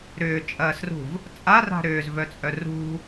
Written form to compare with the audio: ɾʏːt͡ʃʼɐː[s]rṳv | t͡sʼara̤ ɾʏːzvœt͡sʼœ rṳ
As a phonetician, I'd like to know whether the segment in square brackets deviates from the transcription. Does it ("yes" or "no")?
no